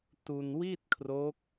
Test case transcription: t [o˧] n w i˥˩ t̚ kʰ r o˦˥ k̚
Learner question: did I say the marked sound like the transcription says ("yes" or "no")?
no